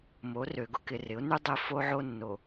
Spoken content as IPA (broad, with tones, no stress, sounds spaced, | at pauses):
m o˨˦ r ø˨ ɡ ʊ˦ k ɪ˨ r ɪ˨˦ ʊ̯ n y˦ dˤ ɪ˦ f o˦ ʕ o˦ nː o˨